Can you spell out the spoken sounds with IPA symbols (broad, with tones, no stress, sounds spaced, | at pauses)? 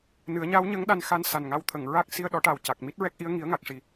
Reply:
n ɨ˨˩˦ ə̯ ɲ a˧˥ w ɲ ə˧˥ ŋ ɗ a˧ n x a˧ n s a˨˩ n ŋ a˧ w t̪ʰ ə˨˩˨ ŋ ɹ a˦˥ k̚ s i˧ ə̯ ɗ ɔ˨˩˦ ʈ a˨˩ w c a˨˩ k̚ m i˦˥ t̚ ɹ ɛ˦˥ k̚ ʔ i˧˥ ə̯ ŋ i˨˩˦ ə̯ ŋ a˨˩ k̚ ʂ i˨˩